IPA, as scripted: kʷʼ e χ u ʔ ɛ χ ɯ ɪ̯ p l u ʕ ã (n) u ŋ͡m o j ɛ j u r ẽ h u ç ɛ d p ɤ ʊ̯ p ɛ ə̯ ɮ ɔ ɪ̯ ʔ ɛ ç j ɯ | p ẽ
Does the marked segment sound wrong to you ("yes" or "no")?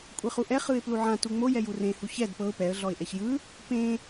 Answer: yes